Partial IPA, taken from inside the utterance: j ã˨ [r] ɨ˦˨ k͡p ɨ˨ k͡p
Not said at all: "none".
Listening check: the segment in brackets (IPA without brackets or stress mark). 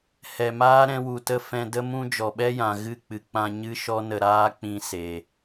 ɣ